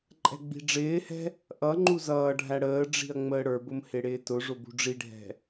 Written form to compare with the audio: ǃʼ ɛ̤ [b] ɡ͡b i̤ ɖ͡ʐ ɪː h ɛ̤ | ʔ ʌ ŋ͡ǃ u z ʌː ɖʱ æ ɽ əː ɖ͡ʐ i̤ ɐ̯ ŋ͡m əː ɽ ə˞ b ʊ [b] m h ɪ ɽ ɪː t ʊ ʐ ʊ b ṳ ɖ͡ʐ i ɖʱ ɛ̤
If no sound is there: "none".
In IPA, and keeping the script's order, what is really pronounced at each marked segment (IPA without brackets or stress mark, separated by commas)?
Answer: none, none